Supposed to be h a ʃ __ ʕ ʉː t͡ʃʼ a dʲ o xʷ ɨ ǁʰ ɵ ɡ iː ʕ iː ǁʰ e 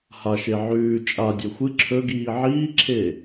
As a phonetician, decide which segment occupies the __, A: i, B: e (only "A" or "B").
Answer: B